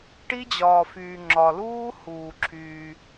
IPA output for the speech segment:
ʈi˦d͡ʑɒː˨fyː˨ŋ͡ǁɒ˨ luː˦ huː˨ ǁʰyː˧

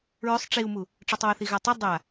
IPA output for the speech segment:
ɹʏsˤ ʈ͡ʂiu̯mu | ʈ͡ʂɔtˤwʊθi ɣɐtˤə dˤa

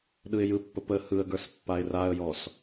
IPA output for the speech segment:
ɗɯɪ̯jɯpːə pə hɯə̯ɡə˞s pːaɪ̯raə̯jɔs

